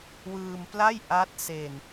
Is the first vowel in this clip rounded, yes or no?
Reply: no